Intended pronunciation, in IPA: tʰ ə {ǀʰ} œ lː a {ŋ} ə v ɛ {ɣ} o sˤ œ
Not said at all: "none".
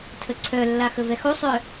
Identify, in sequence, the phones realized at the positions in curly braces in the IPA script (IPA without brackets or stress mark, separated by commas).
ǀʰ, x, x